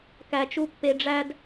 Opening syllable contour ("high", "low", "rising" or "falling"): high